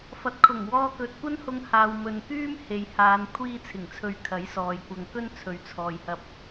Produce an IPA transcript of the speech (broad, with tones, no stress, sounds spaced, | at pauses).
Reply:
f ɐ˨ t̚ kʰ ʊ˨˩ ŋ w ɔː˧ k ɵ˨ t̚ kʷ ɐ˥ n h ʊ˧ ŋ h aː˨ w m ɵ˨ n k yː˥ m h e˨ j h aː˨˧ n kʷʰ iː˧ t͡sʰ ɪ˨˩ ŋ t͡sʰ ɵ˨ ɥ kʰ ɐ˨˥ j s ɔː˨ j kʷ ɐ˨ ŋ k ɵ˥ n t͡sʰ ɵ˨ ɥ t͡sʰ ɔː˨ j h ɐ˧ p̚